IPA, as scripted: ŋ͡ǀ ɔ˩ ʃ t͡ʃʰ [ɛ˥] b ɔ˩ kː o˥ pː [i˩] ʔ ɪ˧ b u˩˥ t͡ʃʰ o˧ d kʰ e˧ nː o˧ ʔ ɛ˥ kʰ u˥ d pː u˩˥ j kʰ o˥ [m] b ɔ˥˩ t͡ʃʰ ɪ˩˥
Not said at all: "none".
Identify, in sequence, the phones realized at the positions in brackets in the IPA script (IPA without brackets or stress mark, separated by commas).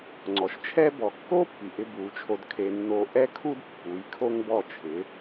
ɛ˥, i˩, ŋ